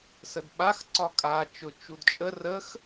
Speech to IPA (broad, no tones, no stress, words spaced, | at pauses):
sədɓax ǀɒkʼa t͡ʃʊ t͡ʃudt͡ʃʼə rəx